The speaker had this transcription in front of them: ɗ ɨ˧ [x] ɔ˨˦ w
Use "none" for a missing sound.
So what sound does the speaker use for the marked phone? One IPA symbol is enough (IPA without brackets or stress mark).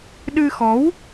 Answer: x